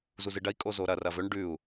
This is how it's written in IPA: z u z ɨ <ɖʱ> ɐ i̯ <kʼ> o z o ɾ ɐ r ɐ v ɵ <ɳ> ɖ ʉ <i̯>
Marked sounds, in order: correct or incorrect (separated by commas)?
incorrect, correct, correct, incorrect